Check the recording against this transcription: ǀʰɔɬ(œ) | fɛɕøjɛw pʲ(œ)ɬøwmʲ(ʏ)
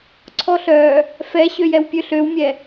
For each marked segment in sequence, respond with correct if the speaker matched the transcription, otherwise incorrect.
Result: correct, incorrect: ø, incorrect: ɛ

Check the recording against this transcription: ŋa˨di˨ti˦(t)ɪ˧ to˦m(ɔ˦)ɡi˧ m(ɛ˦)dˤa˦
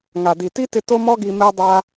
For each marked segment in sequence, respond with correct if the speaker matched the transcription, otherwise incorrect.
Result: correct, correct, correct

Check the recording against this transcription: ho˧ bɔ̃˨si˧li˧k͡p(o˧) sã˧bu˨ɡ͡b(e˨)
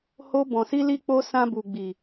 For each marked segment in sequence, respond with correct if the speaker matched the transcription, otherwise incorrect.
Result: correct, incorrect: i˨

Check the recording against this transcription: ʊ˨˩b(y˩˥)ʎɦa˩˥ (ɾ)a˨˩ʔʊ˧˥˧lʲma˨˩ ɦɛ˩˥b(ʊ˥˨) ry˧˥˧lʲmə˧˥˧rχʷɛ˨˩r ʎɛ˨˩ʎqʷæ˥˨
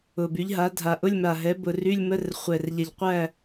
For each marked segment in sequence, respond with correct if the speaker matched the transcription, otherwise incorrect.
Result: correct, incorrect: dʱ, incorrect: ʊ˨˩

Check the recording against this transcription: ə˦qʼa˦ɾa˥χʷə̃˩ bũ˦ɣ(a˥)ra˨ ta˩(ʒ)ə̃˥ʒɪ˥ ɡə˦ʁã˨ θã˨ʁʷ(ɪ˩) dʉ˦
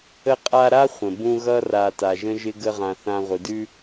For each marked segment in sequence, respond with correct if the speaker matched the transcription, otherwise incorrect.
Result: incorrect: ʌ˥, correct, correct

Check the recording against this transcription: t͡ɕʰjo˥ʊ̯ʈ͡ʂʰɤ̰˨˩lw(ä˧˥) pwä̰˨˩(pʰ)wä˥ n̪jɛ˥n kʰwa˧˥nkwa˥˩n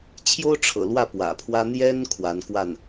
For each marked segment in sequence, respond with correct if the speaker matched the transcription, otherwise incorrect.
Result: incorrect: ä˥˩, correct

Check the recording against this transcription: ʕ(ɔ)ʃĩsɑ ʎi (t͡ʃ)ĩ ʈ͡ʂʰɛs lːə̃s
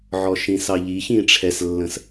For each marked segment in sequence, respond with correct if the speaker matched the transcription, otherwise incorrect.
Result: correct, incorrect: ç

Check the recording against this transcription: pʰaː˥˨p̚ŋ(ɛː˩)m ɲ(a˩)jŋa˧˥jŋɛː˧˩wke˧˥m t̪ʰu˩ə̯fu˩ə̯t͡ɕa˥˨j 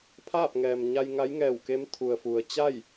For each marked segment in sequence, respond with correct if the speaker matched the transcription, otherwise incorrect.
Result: correct, incorrect: a˧

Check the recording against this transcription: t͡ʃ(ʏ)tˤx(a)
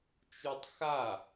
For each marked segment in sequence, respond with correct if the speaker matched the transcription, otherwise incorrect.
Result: incorrect: u, correct

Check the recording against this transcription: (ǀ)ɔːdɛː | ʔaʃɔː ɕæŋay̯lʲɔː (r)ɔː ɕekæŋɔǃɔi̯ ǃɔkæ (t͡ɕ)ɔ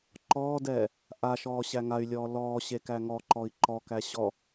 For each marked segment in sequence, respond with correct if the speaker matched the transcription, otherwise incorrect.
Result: incorrect: ǃ, incorrect: l, incorrect: ɕ

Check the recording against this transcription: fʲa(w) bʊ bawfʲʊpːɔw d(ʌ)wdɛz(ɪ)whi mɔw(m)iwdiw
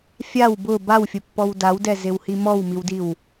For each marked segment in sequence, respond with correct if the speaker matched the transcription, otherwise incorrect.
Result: correct, incorrect: a, correct, correct

